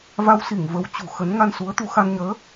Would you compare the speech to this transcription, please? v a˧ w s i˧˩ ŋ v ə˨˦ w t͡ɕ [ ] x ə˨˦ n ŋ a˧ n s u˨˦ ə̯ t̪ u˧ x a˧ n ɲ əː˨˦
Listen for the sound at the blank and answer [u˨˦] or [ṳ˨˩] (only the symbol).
ṳ˨˩